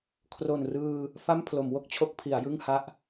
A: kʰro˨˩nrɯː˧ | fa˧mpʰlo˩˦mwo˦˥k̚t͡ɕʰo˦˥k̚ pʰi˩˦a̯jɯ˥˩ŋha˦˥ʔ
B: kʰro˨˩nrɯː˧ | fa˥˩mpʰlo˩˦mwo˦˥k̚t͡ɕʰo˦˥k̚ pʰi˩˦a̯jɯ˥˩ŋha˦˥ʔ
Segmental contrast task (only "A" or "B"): B